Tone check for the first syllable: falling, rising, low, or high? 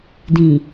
low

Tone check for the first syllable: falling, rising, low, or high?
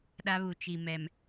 high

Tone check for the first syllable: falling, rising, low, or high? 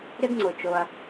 high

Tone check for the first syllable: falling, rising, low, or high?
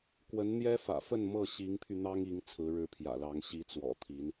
rising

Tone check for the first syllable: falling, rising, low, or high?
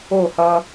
falling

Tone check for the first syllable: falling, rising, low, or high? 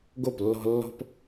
falling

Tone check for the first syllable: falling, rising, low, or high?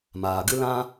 low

